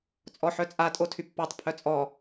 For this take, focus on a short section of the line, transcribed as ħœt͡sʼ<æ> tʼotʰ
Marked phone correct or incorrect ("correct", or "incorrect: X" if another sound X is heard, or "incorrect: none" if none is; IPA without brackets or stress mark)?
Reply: incorrect: a